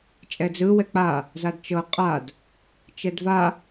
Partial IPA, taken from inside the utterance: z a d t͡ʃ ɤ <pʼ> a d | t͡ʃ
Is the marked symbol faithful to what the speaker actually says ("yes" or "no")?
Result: no